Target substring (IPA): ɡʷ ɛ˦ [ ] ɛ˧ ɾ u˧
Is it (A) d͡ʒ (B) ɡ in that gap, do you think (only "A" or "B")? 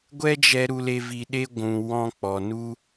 A